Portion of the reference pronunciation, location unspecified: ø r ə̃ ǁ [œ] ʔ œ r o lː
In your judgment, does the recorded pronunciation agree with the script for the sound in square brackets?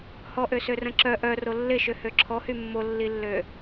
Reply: yes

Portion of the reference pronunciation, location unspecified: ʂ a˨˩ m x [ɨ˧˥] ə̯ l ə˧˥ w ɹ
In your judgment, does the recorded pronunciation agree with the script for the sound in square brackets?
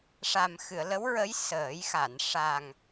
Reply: no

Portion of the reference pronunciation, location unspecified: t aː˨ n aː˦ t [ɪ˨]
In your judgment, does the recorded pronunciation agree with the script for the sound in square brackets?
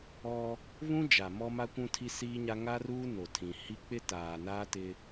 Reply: no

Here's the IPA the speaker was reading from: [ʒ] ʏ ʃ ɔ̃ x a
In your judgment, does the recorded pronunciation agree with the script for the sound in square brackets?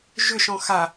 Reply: yes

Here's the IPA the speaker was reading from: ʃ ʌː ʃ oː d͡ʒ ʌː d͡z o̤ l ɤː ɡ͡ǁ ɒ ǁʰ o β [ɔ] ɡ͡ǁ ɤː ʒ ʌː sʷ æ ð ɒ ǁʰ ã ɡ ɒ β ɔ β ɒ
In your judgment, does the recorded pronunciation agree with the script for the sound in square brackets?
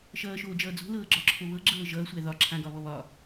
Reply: no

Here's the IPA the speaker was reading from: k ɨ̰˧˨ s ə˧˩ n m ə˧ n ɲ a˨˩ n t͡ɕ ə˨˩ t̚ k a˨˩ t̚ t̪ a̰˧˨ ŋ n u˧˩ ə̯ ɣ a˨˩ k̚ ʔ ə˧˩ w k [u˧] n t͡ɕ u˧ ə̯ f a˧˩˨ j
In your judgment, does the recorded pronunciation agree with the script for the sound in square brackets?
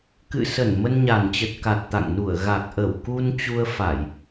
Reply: yes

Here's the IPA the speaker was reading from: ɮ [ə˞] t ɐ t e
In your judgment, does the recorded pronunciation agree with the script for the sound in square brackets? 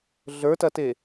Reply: yes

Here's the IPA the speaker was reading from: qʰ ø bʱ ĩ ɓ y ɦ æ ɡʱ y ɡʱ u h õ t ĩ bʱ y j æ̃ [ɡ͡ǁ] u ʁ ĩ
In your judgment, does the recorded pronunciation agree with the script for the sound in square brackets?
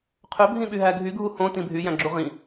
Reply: yes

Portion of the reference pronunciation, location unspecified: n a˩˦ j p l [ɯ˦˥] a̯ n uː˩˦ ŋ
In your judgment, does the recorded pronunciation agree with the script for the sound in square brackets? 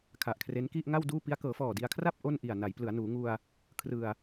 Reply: no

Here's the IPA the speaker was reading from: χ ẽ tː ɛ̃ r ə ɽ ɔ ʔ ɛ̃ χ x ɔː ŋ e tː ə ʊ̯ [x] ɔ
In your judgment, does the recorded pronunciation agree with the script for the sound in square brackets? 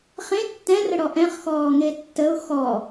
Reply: yes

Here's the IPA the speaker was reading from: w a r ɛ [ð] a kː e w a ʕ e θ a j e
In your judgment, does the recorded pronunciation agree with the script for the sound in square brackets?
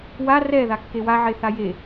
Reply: yes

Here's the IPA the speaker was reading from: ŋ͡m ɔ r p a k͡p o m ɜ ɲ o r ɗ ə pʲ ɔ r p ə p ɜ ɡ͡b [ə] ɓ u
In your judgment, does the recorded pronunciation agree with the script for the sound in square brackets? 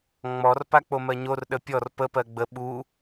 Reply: yes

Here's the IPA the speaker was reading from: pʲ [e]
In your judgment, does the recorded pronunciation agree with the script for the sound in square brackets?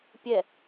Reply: no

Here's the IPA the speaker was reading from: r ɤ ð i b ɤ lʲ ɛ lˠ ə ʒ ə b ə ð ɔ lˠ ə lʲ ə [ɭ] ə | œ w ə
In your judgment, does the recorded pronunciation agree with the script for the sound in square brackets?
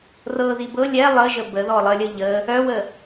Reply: no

